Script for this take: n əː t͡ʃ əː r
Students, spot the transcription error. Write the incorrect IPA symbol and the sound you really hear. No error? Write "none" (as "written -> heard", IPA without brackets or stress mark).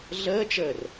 n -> ɮ